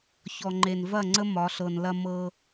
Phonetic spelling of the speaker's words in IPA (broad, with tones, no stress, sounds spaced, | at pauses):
ç ɔ˨ ŋ͡ǃ e˨ n v ɐ˦˨ ŋ͡ǀ ə˦ m ɒ˨˦ ɬ ɤ˨ n l ɐ˦ m ɤ˦